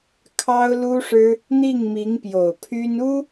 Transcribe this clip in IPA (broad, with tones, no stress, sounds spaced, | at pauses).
kʰ ɑ˥ ʊ̯ l u˥ ʂ ɻ̩˥ | n̪ i˥˩ ŋ m i˧˥ ŋ p j o˨˩ ʊ̯ pʰ y˥ n u˥